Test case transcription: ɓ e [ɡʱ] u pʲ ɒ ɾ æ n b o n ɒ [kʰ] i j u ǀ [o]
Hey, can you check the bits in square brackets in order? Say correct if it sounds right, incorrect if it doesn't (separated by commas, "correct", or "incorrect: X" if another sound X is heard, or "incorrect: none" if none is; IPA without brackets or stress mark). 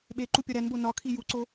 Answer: incorrect: ǃ, correct, correct